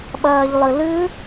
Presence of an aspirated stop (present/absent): absent